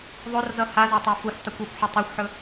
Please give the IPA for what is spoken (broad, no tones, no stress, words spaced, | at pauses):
ðˤorzʌ hazɒtˤa fustˤʌkʷ ɔkʷħɵ tˤoxʷħɵ